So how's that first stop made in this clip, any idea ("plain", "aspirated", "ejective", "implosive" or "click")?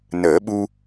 implosive